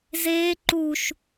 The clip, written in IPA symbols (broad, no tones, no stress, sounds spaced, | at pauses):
z eː ǃ u ʃ